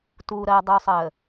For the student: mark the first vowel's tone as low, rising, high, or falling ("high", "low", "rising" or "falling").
low